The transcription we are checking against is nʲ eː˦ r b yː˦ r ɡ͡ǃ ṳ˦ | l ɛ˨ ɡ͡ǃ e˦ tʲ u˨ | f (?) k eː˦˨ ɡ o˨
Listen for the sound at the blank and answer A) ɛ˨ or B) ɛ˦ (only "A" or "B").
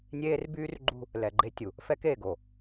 B